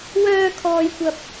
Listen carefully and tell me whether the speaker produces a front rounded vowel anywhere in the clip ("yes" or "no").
yes